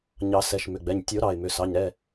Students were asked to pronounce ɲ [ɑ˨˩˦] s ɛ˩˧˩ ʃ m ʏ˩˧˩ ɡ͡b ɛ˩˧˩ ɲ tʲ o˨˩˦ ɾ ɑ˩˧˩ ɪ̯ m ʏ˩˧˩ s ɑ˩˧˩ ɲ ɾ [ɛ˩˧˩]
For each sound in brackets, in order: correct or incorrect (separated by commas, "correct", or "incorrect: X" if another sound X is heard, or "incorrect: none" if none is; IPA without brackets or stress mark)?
correct, correct